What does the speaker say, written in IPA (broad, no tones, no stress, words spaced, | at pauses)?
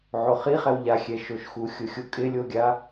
ʕoχiχɛw ʎaxʲɛ ʃoʃxuxʲʊxʲʊ kʼɪlʲoɡʲa